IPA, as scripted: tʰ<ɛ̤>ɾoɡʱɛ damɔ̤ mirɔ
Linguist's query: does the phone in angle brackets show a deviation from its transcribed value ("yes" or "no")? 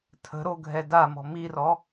yes